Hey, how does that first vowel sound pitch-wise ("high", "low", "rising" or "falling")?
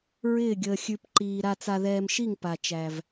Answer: falling